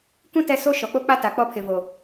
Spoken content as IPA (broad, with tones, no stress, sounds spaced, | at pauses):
k ũ˦ t ɛ˦ s o˦ ʃ ɔ˨ k͡p o˦ k͡p a˦ t a˨ k͡p ɔ˦ pʰ ɪ˨ v o˨